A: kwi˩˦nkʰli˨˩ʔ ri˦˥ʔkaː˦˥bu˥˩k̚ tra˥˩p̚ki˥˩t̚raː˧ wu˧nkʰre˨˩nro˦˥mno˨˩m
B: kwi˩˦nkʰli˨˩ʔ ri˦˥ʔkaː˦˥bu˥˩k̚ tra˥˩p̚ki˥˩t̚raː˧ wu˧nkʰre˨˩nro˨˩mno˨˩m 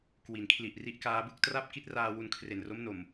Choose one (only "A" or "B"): A